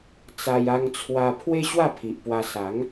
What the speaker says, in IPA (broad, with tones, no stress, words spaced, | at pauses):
t͡sa˧j a˧ŋt͡sʰwa˧ pʰwe˦ ɕwa˥˧pʰi˨ʔpwa˧ sa˨˦ŋ